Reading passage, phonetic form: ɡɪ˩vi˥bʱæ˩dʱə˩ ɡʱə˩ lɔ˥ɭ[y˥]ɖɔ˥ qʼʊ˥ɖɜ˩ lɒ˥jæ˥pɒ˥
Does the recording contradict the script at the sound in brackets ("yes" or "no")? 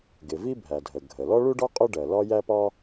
yes